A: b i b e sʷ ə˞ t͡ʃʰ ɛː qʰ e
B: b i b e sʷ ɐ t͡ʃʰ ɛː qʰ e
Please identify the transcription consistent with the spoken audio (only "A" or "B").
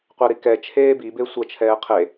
B